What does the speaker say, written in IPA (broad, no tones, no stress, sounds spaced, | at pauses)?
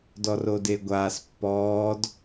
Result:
d ɔ r o d e ɡʷ aː s pː ɔː d